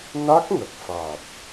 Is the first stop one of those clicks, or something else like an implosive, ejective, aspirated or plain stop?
plain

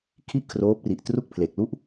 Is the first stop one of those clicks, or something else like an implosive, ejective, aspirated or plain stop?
aspirated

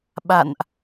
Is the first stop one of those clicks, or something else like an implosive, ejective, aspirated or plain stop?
implosive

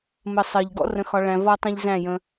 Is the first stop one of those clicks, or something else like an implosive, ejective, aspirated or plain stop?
plain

